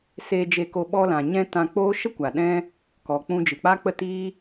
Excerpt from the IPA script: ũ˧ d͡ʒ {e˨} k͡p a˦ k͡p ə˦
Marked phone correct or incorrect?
incorrect